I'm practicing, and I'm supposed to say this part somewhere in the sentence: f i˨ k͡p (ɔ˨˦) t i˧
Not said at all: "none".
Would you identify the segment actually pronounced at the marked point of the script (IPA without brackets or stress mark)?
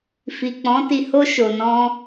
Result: ɔ̃˨˦